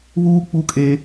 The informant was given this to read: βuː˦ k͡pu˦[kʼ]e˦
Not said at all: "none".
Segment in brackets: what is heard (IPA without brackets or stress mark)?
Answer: kʼ